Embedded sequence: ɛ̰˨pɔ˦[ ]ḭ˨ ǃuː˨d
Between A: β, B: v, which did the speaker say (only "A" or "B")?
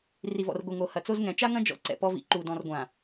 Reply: B